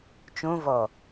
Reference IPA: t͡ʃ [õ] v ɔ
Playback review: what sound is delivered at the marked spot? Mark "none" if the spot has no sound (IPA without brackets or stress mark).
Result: õ